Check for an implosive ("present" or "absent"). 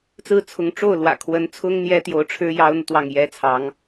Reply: absent